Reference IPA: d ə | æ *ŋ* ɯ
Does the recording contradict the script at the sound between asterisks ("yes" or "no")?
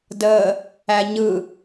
yes